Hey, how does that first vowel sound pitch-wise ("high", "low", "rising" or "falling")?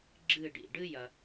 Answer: falling